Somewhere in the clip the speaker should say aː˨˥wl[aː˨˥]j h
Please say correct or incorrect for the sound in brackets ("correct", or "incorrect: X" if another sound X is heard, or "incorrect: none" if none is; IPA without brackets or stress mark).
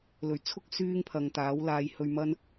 incorrect: aː˧